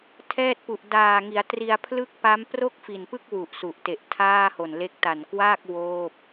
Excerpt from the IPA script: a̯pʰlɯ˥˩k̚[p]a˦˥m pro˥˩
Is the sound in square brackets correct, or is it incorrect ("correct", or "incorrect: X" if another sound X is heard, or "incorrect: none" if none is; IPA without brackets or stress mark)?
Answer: correct